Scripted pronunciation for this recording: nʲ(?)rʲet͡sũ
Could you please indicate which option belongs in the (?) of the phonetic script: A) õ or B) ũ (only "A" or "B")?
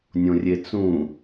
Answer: A